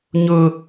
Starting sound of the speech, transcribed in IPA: ɲ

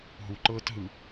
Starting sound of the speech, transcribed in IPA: ɦ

